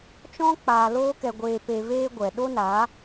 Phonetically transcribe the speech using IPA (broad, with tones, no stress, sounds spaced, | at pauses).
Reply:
t͡ʃ ɔ̃˦ k͡p aː˧ l oː˦ k ɛ˧ ɡʷ eː˧ p e˧ v eː˦ ɡʷ ɛ˨ ɗ o˦ n a˨˦